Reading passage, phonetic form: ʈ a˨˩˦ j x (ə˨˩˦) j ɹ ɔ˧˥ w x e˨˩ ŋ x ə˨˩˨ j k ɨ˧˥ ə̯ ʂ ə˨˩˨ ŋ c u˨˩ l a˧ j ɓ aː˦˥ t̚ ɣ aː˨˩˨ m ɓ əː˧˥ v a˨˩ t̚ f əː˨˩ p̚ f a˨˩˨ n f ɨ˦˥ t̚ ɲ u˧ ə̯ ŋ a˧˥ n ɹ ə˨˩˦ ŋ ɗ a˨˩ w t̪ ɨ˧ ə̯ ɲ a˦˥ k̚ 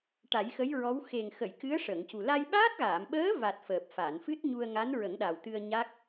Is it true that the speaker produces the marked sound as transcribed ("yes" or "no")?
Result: no